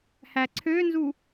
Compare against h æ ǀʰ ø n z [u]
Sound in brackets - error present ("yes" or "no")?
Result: no